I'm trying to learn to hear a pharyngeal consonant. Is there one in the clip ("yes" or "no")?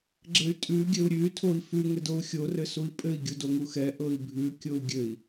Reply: no